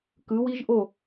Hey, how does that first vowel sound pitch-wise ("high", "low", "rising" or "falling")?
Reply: rising